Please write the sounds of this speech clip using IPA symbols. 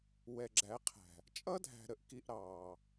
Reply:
wɛ˨ɡ͡ǁæ˨˦qʰæ̤˨ | t͡ʃʼʌ˦dʱæ̤˨ ɾə˨ʔki˨ʔ ɾɑː˨

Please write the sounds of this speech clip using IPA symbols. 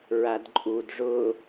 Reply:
ɹadǃʼud ʐʊ

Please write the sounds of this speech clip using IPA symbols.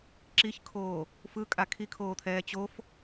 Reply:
ǁiçkʰoː | fɯkʼa kʰikʰoːt̪ʰɛː t͡ɕof

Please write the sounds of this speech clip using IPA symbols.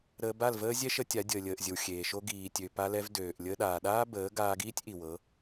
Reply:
ɾəː˧ba˦˨lvəː˦ zʲɛ˦ʃə˧ tʲa˨˦dʲəː˨lʲəː˨ʔzʲə˨w xʲeː˨ʃo˧ ɡiː˨tʲø˨ pa˧lɛ˧v døː˨ʔ lʲəː˧ɗaː˨ɗaː˦bəː˨˦ ɡaː˧ɡiː˦tʲ ʔi˨wɤ˨˦

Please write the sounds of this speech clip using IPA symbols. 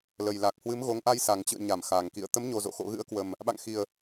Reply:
lə˨˩jla˨˩k̚hwɨ˨˦m ɣo˨˦ŋʔa˧j sa˨˩ŋt͡ɕɨ̰˧˨ə̯ɲa˧˩m xa˨˩ŋkḭ˧˨ə̯ t̪ə˨˦mɲo˨˩zo̰˧˨ xo̰˧˨ɣɨ̰˧˥ə̯kwə˨˩m | ɓa̰˧˨ŋxi˨˩ə̯

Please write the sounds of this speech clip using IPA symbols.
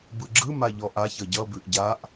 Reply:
bɯɡ͡ǁɯma ʎɔʔaç ʌɟʌbʉʔ ɟaʔ

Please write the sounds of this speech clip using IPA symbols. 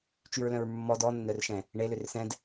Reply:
t͡ʃyɹlœ̃ɹmːɔ dɔnːœr ʃɛ̃ | ɳelør sɛ̃d

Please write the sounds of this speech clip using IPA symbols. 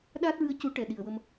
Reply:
ɗaː˦˥t̚ɹɨ˧ə̯ cu˨˩˦ ʈɛ˨˩ ɗi˨˩ə̯wə˧m

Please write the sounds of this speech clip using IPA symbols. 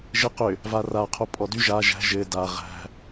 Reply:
ʒɘ qʏ | vara qʰopʼɔdy ʒa ʒæ̤ ʒɘ da ʁæ̤

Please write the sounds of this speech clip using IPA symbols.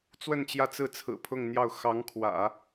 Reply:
t͡swə˥˧nt͡ɕjä˥˧t͡sɹ̩˥˩ t͡sʰɹ̩˨˩pʰʊ˥˧ŋn̪jɑ˥˩ʊ̯ xɑ˧˥ŋkʰwä̰˨˩˦

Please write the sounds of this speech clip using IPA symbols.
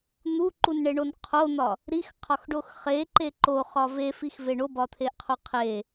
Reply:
n̪uǃunɳeɳon qʰon̪ɒ | ɾixqʰɒxɖox χeǃe ǃoχɒ vefixve ɳobɒt̪ʰeʔqʰo qʰe

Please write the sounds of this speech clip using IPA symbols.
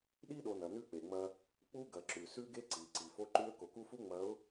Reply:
ɗi˦ɗo˨ nɐ˨ nʉ˦k͡pe˨ŋ͡mɐ˦ | k͡pu˦ɡɐ˨ǁʉ˨ sʉ˦ɡe˦ǀi˨ ǀi˨fo˦ǃʉ˦ə̯ ko˨ku˦fu˦ ŋ͡mɐ˨˦ʊ̯

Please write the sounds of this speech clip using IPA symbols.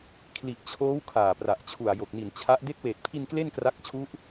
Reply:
kʰli˨˩ʔt͡ɕʰoː˦˥w kʰaː˨˩pra˨˩ʔt͡ɕʰu˨˩a̯ jo˨˩k̚ni˨˩nt͡ɕʰa˦˥ʔ de˦˥k̚weː˨˩t̚pʰi˧n kle˥˩nkra˦˥k̚t͡ɕʰu˦˥ʔ

